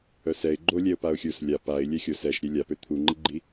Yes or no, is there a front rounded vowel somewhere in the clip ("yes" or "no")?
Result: yes